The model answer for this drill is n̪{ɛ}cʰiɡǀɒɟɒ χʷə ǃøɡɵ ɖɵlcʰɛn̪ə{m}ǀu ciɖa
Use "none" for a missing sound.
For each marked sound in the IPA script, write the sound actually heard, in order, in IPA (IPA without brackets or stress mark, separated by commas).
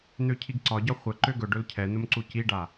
ø, m